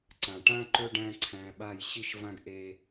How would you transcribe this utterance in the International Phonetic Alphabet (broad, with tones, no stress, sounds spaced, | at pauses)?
ǀ ã˨ ʈ ã˦ ǃ ɵ˦ ɖ æ̃˦ ǀʰ æ̃˧ ɓ a˦˨ j ɕ i˦ ʃ v ã˦ ɡ ʔ e˦